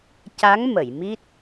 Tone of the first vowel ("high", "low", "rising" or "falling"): rising